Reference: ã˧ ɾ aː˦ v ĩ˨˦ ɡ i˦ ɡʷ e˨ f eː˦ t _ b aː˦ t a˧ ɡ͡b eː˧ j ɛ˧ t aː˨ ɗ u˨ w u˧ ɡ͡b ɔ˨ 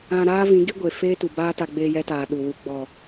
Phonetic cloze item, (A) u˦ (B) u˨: B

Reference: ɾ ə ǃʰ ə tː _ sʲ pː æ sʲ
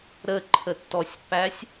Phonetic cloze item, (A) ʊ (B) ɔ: B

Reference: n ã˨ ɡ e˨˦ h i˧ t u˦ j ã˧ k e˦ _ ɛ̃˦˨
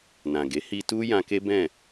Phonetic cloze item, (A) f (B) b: B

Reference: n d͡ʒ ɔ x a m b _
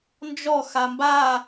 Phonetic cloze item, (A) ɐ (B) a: B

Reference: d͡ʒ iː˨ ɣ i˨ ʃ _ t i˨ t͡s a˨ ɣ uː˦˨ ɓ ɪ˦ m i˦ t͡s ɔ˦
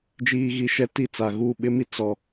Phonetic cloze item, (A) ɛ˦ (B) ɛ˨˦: B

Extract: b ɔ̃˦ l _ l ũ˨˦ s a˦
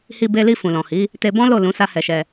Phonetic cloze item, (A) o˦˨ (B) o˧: A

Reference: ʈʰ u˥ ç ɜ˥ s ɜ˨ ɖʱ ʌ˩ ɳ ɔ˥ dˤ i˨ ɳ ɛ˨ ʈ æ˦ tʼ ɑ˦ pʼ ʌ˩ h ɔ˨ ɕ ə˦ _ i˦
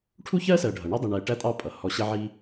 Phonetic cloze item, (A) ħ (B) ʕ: B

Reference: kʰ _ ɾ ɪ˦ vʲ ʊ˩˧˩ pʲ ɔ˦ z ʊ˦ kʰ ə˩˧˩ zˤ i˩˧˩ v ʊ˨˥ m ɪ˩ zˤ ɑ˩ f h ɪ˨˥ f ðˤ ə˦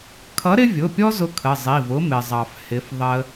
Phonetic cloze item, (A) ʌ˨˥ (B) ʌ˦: A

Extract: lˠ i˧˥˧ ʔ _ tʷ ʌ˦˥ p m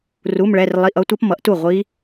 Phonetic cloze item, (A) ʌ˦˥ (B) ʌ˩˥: A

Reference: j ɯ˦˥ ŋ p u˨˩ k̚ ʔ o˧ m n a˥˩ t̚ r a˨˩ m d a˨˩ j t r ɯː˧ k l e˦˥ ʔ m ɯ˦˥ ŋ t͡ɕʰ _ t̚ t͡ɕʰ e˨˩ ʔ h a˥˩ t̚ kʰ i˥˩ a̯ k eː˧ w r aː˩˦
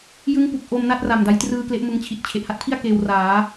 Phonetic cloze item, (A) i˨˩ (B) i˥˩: A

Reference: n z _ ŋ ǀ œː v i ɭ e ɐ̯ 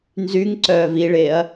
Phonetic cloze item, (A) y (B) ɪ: A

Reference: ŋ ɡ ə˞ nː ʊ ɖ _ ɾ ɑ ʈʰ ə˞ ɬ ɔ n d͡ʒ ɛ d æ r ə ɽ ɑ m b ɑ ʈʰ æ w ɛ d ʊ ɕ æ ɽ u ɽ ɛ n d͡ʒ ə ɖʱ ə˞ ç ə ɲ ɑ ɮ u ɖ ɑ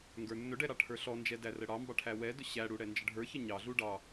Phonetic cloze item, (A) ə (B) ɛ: B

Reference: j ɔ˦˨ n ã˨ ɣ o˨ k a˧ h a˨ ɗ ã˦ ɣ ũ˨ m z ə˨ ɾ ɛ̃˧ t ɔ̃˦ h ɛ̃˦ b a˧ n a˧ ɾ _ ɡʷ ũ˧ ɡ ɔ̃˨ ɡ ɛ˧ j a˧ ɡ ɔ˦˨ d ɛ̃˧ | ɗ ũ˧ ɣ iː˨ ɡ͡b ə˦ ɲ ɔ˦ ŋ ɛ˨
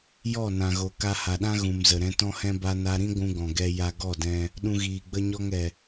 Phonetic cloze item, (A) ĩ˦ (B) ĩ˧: A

